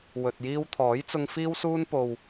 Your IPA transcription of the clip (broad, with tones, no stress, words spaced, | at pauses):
wɵ˨t̚jiː˧w t̪ʰɔː˨˥jt͡sʊ˧ŋ fiː˧wsuː˧npo˨w